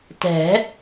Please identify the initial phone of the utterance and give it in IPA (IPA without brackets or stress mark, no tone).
t